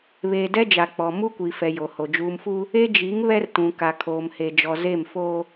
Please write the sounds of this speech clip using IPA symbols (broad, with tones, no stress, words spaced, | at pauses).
βeː˨dɛ˦d͡ʒa˨ k͡pɔ˨ mu˦kʷi˨fɛ˨ jo˨ho˨ d͡ʒuː˨mfuː˦ | e˦d͡ʒi˨˦ŋ βɛ˦rtũ˨ ka˨kʰoː˨mhe˨d͡ʒɔ˨ ze˦˨mfoː˦